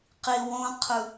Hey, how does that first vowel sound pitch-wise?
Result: low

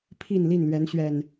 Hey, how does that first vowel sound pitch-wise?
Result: falling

